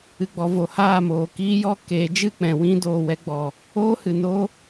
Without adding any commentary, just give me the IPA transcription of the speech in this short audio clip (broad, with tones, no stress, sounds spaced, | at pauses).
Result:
ɨ˨ ɡ͡b ɔ˨ v o˨ h aː˦˨ m oː˨ k iː˦ j ɔ˦ k eː˨˦ d͡ʒ ɨ˦˨ k͡p ɛ̃˨ w ĩ˧ d oː˨ w ɛ˧ ɡ͡b ɔ˨ | oː˦ h ɨ˨ n o˦